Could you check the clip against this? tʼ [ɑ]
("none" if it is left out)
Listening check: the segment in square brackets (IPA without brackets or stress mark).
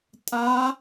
a